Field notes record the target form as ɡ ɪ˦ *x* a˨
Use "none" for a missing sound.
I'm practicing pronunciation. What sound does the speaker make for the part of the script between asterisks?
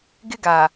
ɡ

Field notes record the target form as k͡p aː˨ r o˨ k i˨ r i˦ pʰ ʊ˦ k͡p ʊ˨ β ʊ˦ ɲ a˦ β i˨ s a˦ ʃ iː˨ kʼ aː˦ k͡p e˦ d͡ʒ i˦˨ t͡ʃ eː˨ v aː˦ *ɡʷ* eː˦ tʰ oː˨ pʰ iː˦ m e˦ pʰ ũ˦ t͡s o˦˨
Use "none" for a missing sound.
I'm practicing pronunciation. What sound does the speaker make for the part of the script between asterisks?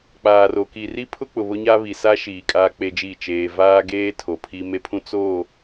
ɡ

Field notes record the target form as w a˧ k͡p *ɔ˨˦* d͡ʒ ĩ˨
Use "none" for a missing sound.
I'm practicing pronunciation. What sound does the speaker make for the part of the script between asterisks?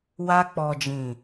ɔ˨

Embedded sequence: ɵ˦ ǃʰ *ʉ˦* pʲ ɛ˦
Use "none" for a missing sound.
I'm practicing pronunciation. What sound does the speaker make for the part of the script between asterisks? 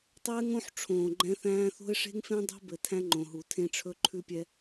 ʉ˦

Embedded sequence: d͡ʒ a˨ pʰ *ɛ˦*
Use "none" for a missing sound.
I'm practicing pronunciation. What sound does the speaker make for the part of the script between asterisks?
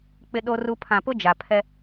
ɛ˦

